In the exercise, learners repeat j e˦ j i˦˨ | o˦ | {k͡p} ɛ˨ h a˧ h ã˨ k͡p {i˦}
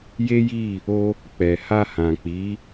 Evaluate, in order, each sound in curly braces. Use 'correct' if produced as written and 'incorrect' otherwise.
correct, incorrect: i˨˦

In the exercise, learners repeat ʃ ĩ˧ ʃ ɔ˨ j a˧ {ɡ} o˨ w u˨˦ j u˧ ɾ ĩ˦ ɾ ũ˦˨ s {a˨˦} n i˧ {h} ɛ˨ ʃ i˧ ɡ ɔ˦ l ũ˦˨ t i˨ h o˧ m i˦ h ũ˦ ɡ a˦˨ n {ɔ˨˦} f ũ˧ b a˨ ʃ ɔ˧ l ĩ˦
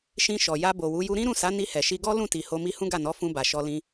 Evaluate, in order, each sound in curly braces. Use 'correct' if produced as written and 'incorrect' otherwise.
incorrect: b, correct, correct, correct

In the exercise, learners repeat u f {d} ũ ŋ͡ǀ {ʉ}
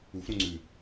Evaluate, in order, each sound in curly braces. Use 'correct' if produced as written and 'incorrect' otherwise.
incorrect: ɾ, correct

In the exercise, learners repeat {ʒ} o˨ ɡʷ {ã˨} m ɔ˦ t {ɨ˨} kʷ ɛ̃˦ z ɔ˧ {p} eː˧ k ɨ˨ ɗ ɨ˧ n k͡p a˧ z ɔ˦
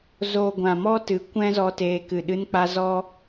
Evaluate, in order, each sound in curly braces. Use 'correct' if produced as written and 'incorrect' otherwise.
incorrect: z, correct, incorrect: ɨ˨˦, incorrect: t

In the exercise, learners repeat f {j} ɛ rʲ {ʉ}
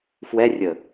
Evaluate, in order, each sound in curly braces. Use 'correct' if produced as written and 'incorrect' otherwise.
incorrect: w, incorrect: ə

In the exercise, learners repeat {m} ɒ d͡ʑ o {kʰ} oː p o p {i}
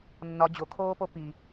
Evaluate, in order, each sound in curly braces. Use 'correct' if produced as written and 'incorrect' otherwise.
incorrect: nː, correct, correct

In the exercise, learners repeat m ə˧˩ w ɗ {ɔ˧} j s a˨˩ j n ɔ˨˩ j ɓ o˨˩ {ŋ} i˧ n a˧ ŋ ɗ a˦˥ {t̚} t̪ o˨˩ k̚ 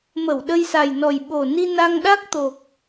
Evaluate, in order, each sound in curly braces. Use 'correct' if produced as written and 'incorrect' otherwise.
incorrect: ə˧, incorrect: n, incorrect: k̚

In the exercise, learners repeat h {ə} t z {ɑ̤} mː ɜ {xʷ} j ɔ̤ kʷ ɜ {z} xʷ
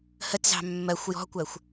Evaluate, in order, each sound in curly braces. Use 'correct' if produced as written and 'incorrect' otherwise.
correct, correct, correct, incorrect: none

